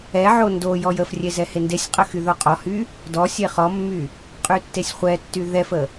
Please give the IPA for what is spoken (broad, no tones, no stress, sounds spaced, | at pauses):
ɛ ʕ o n d o j ɔ j ə f rʲ e z ɛ h e n d e sʲ qʼ ə x y ð o qʼ ɔ h y | d ɔ sʲ e χ ɔ mː y | qʼ y tː e sʲ χʷ ɛ tː y ð ɛ f ə